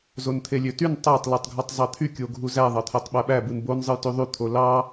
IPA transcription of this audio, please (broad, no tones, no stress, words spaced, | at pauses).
zont̪ʰelʲøtyn tˤætˤ letˤɡʱotˤzˤɑt̪ʰy kʲoɡʱuzæ ðˤɑt̪ʰætˤɓæɓæ bɯnbon zˤɯjtyðˤy t̪ʰolɑ